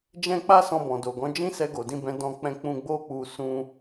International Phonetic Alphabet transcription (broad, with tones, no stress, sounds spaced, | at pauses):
d͡ʒ ɛ̃˦ k͡p a˦ s ɔ̃˧ b ɔ̃˨ d o˨ ɡ ɔ̃˨˦ d͡ʒ ĩ˦ s ɛ˧ ɡ o˨ d ĩ˧ b ɛ̃˧ d ɔ̃˧ k͡p ɛ̃˧ k͡p ũ˧ ɡ͡b o˦ k͡p u˧ s ũ˦